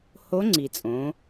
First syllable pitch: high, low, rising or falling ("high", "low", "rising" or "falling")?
rising